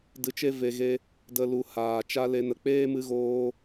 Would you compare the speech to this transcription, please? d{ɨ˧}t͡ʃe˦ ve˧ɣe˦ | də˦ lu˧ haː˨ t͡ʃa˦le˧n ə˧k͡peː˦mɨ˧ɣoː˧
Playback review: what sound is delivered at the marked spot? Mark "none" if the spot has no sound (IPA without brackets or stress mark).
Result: ɨ˧